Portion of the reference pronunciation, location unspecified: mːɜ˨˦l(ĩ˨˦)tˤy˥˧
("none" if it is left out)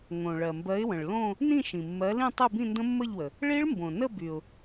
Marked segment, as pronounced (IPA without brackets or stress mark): ĩ˥˧